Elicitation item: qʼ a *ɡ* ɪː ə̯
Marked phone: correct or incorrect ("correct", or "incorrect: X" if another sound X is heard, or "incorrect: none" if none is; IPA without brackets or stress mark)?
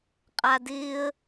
incorrect: d